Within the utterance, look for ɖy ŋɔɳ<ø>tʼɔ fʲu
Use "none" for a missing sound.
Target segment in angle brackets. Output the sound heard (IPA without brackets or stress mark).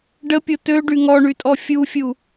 y